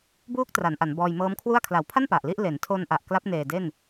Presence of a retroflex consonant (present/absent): absent